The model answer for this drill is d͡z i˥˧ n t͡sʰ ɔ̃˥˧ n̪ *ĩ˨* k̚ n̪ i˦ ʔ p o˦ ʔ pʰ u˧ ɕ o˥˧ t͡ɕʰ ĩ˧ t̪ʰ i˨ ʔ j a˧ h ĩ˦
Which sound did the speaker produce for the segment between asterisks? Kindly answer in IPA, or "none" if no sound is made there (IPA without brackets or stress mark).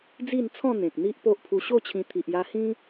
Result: ẽ˨